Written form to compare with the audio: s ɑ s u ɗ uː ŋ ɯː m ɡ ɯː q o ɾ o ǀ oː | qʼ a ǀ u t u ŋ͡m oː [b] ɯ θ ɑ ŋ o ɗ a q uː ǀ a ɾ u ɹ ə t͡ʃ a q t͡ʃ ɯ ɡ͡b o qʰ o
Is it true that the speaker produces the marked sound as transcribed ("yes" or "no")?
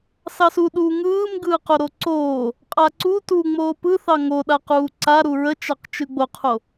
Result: no